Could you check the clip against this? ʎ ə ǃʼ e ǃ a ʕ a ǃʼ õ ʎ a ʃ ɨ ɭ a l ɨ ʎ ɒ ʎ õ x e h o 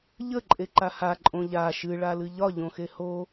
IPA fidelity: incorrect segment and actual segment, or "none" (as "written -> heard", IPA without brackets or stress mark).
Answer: ʕ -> h